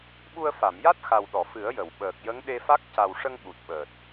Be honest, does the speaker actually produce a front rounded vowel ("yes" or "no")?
no